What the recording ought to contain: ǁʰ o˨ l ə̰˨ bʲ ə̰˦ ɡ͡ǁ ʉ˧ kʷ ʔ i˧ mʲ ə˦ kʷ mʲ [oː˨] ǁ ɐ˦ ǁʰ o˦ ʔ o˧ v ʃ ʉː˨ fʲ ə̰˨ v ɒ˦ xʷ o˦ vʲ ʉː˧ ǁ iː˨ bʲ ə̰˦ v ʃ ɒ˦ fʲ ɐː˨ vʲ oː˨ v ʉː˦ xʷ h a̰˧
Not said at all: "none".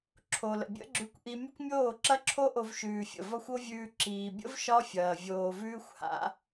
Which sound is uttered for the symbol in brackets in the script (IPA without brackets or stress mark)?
oː˦˨